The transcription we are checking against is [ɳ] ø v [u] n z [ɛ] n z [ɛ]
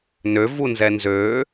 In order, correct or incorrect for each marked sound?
incorrect, correct, correct, incorrect

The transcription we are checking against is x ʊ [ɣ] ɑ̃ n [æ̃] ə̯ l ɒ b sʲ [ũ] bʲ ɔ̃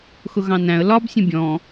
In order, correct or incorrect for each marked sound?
correct, correct, correct

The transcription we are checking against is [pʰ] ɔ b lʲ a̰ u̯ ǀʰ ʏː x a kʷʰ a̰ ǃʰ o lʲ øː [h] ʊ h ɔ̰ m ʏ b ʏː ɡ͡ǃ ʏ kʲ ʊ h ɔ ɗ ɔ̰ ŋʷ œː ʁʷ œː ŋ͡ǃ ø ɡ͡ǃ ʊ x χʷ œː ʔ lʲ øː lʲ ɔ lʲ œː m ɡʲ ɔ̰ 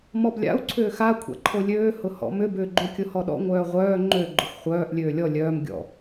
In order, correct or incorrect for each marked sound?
incorrect, correct

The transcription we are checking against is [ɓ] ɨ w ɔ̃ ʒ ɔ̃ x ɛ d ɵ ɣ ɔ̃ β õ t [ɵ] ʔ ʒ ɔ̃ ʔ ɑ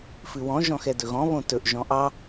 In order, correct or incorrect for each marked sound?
incorrect, correct

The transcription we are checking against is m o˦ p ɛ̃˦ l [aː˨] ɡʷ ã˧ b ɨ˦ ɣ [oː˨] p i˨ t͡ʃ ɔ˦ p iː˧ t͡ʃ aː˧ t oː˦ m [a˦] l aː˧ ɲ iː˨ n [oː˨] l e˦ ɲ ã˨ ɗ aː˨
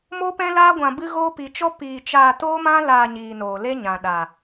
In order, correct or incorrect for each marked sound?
incorrect, incorrect, incorrect, correct

